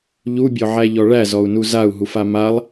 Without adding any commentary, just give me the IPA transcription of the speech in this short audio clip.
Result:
ʎubʲɔʕæʎɔ ɭæzɔu̯nu zau̯ɦufa malˠ

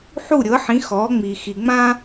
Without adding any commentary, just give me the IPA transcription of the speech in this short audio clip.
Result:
ħu˥˩ɾʲɤ˩˥ħĩ˩˥ xɔː˩˥ŋ͡mi˩xi˩ŋ͡mã˥

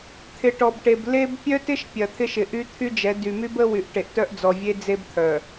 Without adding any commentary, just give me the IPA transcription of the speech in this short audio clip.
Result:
t̪ʰɪ˨ʈɔ˨bʈe˨b le˦b pʲœ˦tɪ˦ʃ pʲɐ˨t̪ʰɪ˦ʃ ɪ˨ʔy˦t̪ʰy˦d͡ʒɛ˨˦ dy˨my˦bə˦ wy˨ʔʈe˨ʔtœ˦ʔd͡zɔ˨ vʲe˦d͡ze˦b t̪ʰœ˨

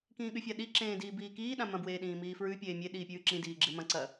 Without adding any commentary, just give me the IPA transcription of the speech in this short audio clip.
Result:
kĩːɠʉfʲaɗi ǁẽːdiːbiːkiː ɗãmɐ̃ bweːɗĩːmiːfɹʉ pʲeːmʲe ɗiːpʲʉːǁĩ diːɡ͡ǁemɐ̃ ǀɐ

